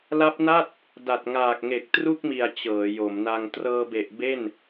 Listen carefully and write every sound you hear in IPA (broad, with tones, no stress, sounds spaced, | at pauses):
l a˦˥ p̚ n a˥˩ t̚ | d a˨˩ t̚ ŋ aː˨˩ k̚ ŋ e˨˩ k̚ t r u˥˩ k̚ m i˨˩ a̯ t͡ɕ ɤː˩˦ j o˩˦ m n a˧ ŋ t r ɤː˧ b e˨˩ ʔ b e˥˩ n